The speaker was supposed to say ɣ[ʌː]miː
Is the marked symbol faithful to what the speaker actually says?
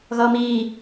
yes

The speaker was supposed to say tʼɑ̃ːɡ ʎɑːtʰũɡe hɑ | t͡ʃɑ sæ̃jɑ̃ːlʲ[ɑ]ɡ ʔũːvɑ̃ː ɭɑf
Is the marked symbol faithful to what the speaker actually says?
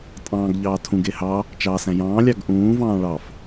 yes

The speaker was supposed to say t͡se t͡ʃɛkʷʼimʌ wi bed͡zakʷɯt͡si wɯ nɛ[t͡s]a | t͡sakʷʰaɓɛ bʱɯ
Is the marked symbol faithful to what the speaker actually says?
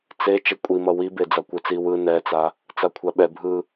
yes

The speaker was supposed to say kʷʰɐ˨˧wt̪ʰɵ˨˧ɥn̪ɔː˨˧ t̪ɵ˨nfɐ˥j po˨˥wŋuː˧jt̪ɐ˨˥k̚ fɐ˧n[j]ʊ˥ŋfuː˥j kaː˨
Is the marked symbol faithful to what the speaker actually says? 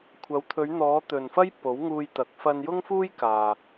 yes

